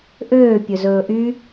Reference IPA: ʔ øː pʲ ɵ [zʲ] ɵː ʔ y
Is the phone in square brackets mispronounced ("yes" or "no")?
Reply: yes